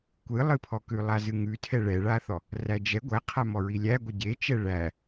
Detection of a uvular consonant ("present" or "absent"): present